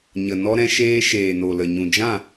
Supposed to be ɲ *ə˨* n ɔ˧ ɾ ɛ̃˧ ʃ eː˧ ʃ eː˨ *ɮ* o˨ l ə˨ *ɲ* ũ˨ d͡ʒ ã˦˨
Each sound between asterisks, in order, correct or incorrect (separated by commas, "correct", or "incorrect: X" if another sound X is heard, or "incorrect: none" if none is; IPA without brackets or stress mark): correct, incorrect: n, correct